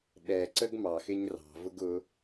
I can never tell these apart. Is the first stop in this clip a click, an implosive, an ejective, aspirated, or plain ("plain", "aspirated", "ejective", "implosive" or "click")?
implosive